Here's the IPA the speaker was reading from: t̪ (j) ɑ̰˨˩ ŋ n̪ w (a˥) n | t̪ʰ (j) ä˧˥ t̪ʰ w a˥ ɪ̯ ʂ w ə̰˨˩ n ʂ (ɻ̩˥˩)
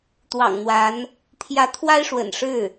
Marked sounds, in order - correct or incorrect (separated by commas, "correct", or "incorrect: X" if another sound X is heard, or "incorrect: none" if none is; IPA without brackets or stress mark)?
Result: incorrect: w, incorrect: a˧˥, correct, correct